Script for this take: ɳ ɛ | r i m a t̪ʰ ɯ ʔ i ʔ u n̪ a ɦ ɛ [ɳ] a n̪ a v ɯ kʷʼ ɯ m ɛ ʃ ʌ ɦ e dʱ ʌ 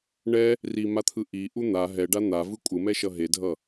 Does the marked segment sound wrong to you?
yes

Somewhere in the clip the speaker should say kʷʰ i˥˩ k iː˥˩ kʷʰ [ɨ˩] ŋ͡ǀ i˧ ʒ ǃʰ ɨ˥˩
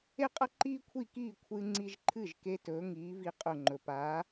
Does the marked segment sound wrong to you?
yes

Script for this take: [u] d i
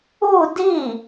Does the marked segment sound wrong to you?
no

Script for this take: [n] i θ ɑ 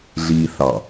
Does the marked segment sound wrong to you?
yes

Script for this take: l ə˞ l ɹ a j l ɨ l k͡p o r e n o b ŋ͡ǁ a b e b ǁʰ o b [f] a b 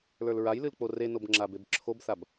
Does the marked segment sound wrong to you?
yes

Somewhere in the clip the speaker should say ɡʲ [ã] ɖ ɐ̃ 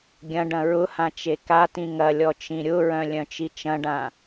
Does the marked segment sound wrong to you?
yes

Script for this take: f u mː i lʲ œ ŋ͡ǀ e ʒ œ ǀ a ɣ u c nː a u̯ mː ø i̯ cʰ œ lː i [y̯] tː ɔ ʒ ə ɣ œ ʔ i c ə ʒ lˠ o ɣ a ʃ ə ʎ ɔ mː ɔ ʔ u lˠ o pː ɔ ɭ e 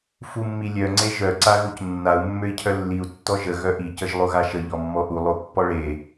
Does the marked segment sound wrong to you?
yes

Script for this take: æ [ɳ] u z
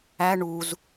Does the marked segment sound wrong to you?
no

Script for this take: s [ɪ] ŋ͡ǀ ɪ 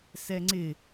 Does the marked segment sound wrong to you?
yes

